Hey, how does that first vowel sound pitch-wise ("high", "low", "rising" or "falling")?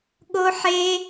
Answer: high